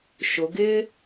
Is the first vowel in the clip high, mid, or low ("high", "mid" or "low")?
high